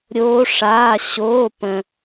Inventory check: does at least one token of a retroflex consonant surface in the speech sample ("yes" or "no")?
yes